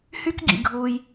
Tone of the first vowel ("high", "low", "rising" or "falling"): high